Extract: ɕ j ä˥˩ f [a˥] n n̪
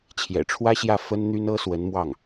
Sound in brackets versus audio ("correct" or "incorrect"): incorrect